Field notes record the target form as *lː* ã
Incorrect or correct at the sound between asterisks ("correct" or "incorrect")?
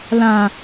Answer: incorrect